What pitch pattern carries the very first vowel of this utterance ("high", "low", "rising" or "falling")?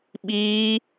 high